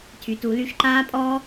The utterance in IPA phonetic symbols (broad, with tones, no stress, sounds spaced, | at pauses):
tʰ y˨ t u˨˦ l y˧ ʃ ǃ aː˦ pʼ ɔː˦